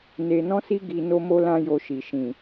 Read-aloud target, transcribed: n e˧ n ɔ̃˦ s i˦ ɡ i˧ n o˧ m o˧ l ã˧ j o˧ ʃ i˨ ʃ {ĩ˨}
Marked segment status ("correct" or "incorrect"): correct